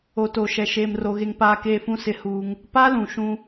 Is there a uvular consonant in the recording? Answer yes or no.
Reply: no